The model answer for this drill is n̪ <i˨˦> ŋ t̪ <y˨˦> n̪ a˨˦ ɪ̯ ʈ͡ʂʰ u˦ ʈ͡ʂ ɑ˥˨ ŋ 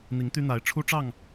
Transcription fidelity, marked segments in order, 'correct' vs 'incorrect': correct, incorrect: y˦

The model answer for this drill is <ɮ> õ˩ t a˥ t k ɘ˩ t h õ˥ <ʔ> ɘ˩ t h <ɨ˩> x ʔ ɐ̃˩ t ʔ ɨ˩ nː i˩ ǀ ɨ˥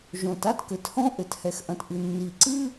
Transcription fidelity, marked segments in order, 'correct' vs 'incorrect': incorrect: ʒ, correct, incorrect: ɛ˩

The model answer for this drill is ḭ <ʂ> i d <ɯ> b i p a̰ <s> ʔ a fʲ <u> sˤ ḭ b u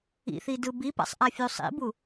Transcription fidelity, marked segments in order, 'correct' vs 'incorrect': incorrect: θ, correct, incorrect: sˤ, correct

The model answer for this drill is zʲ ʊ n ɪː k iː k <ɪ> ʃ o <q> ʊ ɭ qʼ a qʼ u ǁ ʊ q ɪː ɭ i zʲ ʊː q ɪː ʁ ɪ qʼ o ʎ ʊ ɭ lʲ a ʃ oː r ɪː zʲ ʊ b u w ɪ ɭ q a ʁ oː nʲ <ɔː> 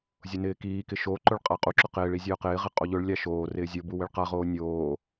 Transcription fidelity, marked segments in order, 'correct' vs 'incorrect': correct, incorrect: ǃ, incorrect: oː

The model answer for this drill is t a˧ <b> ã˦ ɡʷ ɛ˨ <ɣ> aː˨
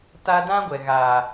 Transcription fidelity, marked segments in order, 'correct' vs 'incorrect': incorrect: d, correct

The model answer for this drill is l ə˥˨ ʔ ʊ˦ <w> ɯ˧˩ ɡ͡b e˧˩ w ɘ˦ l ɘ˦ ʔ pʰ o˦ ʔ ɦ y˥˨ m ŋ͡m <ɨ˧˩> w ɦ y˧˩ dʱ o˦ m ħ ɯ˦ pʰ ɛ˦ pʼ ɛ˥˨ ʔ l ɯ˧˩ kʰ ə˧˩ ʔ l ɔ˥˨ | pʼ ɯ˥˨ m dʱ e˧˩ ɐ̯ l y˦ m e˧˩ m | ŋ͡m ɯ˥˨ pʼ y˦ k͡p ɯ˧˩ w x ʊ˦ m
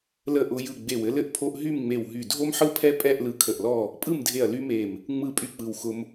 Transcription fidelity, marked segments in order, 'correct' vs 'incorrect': incorrect: j, incorrect: e˧˩

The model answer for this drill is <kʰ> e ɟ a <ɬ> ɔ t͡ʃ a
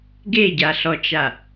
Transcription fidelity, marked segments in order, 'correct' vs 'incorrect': incorrect: ɡ, correct

